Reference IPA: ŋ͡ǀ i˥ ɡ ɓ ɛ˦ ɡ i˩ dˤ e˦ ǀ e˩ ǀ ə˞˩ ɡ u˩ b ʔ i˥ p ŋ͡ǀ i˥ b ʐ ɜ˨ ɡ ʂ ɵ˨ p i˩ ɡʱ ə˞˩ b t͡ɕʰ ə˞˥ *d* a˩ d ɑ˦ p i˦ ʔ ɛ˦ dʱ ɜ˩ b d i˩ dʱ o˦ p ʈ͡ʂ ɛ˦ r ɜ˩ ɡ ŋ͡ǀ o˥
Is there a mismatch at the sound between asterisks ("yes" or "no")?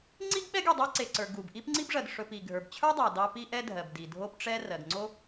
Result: yes